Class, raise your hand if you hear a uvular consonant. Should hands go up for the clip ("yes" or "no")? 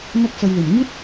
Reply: no